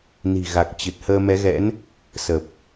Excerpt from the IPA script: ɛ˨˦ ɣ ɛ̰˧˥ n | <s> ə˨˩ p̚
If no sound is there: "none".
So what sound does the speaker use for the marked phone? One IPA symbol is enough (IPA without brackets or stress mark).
s